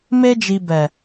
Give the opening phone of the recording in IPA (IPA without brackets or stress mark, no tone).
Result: m